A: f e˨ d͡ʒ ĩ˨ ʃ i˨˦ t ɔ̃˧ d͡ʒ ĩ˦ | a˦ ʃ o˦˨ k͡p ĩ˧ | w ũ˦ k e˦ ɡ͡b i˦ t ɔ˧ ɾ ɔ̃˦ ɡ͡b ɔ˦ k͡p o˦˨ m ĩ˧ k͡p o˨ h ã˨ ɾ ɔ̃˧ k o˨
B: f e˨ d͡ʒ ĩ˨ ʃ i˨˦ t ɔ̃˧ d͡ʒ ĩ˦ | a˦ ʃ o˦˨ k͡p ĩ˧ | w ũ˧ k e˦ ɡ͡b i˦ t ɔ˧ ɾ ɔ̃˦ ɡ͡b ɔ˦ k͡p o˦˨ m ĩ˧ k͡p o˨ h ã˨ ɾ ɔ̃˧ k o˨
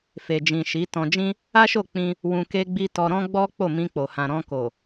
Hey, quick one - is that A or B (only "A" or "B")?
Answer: B